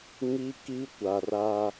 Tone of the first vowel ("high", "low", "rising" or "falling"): high